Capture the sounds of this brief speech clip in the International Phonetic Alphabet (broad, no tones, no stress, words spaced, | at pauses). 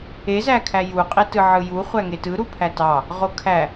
ezækʰæ juqʼetɯ ʕɯju χʷæŋetɯ ɾupʰætɑ | ʁokʰæ